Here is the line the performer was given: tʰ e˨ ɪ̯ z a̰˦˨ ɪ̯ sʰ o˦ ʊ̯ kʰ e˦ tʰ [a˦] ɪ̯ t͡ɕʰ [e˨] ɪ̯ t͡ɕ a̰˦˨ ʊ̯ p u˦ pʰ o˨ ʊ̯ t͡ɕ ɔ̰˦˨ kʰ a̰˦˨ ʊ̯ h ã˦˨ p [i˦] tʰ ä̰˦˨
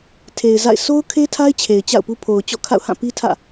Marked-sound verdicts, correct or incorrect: correct, correct, correct

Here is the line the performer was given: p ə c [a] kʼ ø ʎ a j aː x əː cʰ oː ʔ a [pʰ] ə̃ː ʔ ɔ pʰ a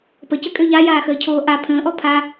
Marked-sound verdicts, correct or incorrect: incorrect: ə, correct

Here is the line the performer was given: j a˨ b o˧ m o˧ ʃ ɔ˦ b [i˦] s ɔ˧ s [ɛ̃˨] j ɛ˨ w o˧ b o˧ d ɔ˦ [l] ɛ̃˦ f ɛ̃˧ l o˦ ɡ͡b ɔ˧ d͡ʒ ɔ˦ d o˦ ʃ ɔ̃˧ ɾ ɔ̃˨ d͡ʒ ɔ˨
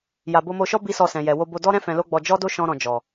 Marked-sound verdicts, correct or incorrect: correct, correct, incorrect: ɾ

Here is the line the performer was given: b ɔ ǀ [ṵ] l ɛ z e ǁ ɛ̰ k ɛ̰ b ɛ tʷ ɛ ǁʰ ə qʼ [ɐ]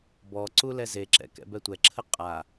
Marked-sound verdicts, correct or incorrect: incorrect: u, incorrect: a

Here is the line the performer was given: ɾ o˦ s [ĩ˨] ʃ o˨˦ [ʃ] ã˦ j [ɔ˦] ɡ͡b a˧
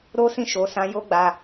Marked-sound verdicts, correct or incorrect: incorrect: ĩ˦˨, incorrect: s, incorrect: o˦

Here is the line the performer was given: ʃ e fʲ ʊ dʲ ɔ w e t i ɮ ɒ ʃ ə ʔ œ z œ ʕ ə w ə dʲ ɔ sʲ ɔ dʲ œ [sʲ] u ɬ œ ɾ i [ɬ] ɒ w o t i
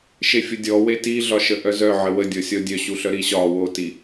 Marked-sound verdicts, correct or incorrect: incorrect: ɕ, incorrect: ɕ

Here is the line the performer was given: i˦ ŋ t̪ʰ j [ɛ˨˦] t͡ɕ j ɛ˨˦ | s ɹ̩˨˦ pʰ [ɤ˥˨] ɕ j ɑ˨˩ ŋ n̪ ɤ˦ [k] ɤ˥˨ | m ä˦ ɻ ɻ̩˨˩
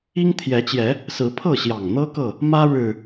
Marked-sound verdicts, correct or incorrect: correct, correct, correct

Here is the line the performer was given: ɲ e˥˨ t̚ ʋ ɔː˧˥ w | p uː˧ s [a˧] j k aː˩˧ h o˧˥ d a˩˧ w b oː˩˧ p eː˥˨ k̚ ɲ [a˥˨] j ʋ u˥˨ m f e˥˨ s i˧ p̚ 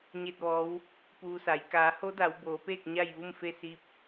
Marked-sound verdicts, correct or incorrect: incorrect: a˩˧, correct

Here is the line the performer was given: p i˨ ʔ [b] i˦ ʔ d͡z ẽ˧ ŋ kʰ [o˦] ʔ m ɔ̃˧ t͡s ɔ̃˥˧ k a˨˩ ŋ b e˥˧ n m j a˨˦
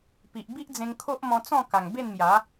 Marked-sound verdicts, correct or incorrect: correct, correct

